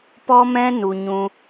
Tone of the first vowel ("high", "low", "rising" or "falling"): high